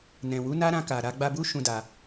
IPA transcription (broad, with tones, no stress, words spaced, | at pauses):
nɛ̃˨ wu˨˦na˦ ɾã˧ka˨ ɾa˧ɡ͡ba˧bu˦ ʃũ˦da˧